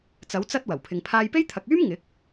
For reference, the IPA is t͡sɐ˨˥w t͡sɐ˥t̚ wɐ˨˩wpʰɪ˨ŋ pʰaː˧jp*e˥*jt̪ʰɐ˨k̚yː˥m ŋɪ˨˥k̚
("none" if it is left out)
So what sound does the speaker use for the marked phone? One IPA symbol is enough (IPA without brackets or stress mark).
e˥